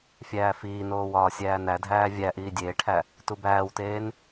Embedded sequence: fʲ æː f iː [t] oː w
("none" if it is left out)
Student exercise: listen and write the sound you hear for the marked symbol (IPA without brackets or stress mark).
n